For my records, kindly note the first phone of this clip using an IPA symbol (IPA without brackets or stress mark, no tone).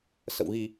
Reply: s